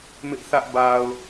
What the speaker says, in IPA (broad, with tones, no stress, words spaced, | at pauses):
mɪ˦ʔθä˦ʔ ba˨ʊ̯